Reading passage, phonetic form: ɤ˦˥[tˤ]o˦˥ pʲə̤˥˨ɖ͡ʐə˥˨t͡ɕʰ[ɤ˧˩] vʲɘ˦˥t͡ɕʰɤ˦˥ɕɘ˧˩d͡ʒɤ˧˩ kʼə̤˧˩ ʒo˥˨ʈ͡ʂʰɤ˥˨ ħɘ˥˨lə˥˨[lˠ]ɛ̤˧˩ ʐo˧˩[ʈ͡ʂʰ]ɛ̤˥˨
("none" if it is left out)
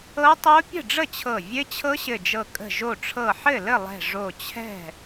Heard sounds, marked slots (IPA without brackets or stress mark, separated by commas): tˤ, ɤ˧˩, lˠ, t͡ɕʰ